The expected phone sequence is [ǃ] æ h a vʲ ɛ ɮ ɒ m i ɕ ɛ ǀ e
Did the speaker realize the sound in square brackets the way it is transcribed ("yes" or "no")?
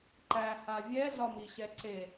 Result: yes